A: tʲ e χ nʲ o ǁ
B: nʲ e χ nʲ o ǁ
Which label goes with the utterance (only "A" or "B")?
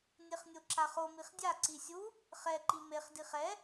B